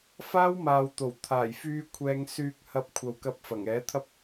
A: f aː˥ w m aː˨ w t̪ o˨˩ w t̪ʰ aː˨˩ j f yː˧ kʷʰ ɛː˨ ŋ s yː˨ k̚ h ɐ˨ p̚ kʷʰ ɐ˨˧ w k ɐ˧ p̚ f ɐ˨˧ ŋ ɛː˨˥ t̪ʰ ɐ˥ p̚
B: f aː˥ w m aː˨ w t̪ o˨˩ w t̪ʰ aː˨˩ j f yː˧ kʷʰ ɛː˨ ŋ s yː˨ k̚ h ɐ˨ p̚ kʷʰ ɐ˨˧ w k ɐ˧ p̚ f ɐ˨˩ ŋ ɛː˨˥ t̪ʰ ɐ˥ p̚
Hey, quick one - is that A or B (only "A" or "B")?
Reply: B